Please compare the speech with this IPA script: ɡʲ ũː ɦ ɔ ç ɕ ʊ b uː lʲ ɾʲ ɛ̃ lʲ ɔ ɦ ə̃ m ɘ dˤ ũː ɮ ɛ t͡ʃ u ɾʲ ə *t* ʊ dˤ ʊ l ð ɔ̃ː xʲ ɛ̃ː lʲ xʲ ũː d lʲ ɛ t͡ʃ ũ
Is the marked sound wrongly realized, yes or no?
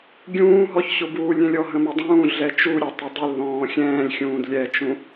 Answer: yes